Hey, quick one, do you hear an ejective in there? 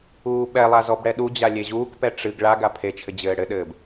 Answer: no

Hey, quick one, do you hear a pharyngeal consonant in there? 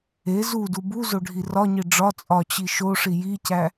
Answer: no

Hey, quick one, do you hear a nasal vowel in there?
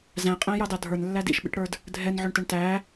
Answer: yes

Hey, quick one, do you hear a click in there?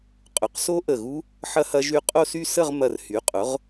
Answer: no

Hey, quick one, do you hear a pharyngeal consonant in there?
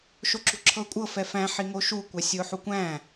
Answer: yes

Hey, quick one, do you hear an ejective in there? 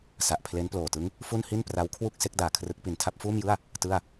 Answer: no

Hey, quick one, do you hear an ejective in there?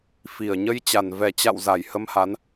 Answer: no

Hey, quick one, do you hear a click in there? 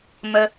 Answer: no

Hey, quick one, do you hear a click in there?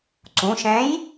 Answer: yes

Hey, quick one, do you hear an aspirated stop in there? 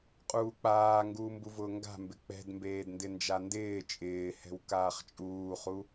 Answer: no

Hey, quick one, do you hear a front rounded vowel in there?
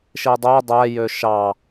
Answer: yes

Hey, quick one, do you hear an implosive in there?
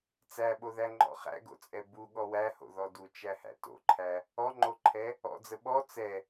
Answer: yes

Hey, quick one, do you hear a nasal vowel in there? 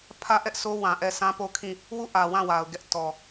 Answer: yes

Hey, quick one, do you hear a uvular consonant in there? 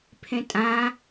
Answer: no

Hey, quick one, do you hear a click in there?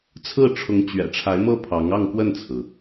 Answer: no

